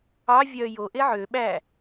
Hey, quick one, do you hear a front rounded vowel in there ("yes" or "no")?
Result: yes